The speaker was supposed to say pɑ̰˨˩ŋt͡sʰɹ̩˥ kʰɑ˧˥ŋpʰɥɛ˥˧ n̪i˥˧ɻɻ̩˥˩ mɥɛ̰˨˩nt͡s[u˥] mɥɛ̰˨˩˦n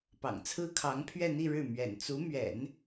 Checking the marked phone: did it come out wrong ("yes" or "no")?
yes